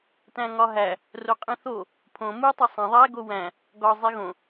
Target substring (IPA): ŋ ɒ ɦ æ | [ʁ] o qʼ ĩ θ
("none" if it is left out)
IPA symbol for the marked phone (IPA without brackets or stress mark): r